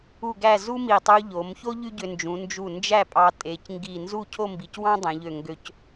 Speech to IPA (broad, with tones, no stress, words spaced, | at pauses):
u˥˧ɡæ˥˧ zu˥mi˧˩ tˤu˧ʎo˩˧mço˥ ʎy˥ɟø˧nd͡ʒũ˩˧ nd͡ʒu˧˩ nd͡ʒæ˥˧pʼɑ˧ tʼe˩˧cŋɡi˧˩ nzu˥˧cʰo˥˧mbi˩˧cwɑ̃˥ dˤẽ˩˧ʎø˧˩ŋɡø˧c